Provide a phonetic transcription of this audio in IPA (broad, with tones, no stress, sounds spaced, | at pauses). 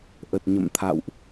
ʔ ə˨˩ t̚ ɲ ə̰˧˨ m t̪ʰ a̰˧˨ w ʔ